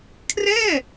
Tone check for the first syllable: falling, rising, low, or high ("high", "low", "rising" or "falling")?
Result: falling